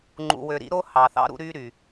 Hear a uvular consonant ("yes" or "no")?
no